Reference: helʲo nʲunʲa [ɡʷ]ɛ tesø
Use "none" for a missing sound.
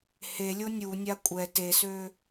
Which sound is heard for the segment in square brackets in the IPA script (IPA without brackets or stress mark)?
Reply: kʷʼ